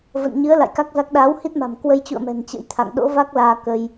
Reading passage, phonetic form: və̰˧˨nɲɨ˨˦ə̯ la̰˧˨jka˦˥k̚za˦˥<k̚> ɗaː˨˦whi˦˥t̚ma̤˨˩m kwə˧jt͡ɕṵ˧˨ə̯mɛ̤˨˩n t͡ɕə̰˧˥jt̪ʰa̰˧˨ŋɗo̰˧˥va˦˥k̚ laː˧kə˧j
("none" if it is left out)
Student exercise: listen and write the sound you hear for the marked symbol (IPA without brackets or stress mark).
k̚